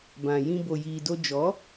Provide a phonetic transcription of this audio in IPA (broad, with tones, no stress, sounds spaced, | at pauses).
b ã˨ j ĩ˧ b o˨ j iː˨ d o˧ d͡ʒ ɔ˨˦